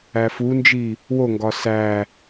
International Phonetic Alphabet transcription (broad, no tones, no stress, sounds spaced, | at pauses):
æ f u n d͡ʒ i | w o ŋ ɡ ɒ s æ